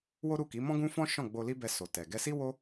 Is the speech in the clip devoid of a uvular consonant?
yes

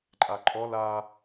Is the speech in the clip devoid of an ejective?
no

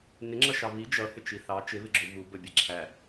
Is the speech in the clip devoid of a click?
no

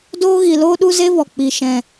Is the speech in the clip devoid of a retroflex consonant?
yes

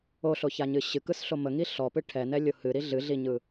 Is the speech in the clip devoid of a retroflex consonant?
no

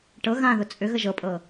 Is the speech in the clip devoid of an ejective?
no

